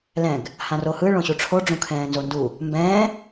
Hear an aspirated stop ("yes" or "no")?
yes